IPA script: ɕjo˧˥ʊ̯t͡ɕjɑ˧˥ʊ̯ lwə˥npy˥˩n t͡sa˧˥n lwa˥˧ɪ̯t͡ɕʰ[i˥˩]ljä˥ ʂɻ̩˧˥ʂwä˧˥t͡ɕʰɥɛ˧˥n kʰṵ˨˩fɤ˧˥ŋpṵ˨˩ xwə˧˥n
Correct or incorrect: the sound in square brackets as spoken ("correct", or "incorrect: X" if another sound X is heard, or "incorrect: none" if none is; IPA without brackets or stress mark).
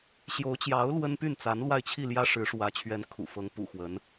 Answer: correct